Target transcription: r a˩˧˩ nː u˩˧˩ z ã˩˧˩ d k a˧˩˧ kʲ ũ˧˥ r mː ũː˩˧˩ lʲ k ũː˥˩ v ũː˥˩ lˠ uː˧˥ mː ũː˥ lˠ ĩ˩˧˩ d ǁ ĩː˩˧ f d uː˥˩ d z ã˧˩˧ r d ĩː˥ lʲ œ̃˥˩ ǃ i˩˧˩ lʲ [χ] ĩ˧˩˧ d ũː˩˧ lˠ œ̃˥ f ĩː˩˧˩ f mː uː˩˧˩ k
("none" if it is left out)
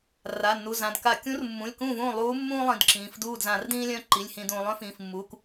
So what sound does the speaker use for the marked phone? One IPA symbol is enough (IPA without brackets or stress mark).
h